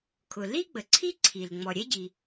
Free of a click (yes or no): no